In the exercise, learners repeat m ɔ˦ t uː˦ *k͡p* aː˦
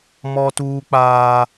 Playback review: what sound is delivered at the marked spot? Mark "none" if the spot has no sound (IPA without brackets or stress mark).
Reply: k͡p